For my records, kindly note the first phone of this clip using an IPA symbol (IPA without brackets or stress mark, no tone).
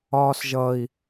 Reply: ɒː